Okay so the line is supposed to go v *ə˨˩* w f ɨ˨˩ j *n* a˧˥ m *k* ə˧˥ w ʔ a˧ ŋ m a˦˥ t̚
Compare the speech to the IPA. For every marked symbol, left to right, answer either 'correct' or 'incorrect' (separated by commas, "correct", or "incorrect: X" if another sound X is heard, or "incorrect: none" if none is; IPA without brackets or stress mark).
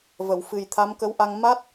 incorrect: ə˨˩˨, incorrect: t̪ʰ, correct